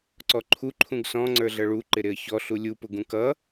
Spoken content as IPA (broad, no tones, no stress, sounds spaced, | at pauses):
ǀ ɔ ǃʰ u ǃʰ ũ ɡ s ɔ̃ ŋ͡ǀ ə˞ ɮ ʌ ɭ u ǃ ɪ ɾ ɪ ə̯ ç ɔ ɬ u lʲ u p ʊ ɡ ũ k ʌ